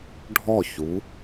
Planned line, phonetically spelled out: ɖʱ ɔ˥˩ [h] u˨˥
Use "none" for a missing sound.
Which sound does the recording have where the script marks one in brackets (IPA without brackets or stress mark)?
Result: ç